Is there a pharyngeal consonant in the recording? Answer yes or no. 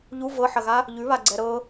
yes